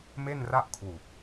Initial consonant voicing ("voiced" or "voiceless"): voiced